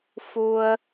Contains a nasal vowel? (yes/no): no